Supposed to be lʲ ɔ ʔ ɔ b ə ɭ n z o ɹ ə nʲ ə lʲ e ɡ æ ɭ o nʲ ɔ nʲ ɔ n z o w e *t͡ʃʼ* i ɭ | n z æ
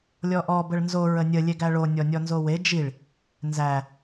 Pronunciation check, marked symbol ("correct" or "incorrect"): incorrect